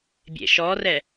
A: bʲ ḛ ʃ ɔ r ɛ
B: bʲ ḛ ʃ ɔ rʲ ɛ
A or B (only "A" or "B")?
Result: A